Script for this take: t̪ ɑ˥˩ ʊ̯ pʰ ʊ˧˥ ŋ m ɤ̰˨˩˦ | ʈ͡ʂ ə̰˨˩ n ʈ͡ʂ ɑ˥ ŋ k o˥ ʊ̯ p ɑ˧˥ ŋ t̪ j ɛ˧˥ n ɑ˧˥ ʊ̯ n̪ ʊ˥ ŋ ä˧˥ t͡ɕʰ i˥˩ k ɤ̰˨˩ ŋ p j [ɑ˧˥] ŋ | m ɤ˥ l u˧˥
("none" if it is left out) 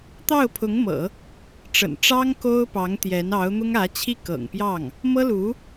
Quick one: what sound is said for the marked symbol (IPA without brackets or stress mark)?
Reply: ɑ˥˩